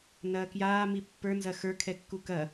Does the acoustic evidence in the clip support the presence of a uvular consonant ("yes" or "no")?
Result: no